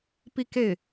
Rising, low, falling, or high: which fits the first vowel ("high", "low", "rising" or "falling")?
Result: falling